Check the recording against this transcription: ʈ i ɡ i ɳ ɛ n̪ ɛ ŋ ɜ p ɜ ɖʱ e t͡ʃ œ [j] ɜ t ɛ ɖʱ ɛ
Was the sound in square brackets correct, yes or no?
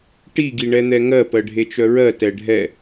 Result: no